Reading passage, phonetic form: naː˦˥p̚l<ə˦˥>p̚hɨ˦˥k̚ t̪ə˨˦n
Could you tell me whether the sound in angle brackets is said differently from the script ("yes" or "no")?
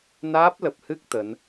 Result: yes